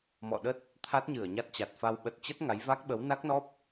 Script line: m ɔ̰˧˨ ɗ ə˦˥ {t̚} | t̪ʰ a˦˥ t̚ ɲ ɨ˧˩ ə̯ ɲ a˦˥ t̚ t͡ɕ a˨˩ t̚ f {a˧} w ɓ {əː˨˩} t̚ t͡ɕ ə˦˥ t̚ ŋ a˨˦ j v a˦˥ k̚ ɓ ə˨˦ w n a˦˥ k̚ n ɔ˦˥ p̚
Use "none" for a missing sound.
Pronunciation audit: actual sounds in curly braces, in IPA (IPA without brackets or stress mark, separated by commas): t̚, a˧, ə˨˩